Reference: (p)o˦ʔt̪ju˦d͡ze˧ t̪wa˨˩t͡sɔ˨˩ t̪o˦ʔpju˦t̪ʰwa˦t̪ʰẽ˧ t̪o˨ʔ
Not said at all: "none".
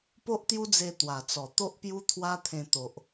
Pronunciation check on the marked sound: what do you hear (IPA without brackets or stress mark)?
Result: p